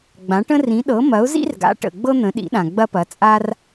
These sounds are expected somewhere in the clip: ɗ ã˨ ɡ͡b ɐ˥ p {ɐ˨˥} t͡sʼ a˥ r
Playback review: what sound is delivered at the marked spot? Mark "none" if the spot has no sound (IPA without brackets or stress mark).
ɐ˨˥